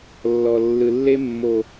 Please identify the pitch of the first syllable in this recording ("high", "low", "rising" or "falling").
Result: low